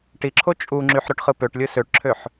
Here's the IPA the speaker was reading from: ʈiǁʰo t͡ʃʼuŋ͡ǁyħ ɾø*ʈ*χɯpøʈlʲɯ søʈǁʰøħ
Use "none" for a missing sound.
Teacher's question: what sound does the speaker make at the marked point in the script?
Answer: ʈ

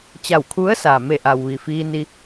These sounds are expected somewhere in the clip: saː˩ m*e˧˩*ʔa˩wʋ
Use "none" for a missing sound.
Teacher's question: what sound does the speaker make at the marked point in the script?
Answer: e˧˩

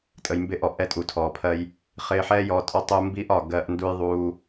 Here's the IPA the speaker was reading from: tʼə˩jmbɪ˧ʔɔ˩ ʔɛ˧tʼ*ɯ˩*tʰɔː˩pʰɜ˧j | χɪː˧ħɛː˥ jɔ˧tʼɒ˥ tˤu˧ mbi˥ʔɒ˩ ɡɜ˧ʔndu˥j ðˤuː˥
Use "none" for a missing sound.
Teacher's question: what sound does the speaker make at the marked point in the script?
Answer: u˩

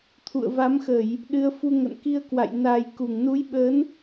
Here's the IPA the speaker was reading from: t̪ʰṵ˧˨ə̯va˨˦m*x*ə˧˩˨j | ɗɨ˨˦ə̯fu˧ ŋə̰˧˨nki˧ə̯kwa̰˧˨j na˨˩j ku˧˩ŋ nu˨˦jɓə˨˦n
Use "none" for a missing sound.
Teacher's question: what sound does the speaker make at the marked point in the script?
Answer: x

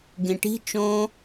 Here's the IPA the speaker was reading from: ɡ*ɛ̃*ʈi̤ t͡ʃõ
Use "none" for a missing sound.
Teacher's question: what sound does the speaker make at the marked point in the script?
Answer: ẽ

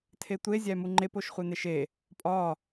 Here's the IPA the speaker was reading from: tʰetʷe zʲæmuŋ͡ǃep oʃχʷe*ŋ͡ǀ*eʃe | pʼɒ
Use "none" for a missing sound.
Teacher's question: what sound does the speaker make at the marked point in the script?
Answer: n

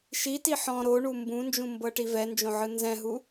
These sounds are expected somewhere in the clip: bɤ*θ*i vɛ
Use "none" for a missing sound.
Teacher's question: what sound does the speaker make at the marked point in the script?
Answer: ʈ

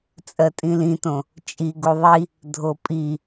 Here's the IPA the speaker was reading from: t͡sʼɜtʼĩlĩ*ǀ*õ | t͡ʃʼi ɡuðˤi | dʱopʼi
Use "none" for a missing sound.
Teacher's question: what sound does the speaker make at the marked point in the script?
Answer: t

